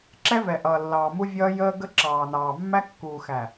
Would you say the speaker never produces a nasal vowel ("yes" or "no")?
yes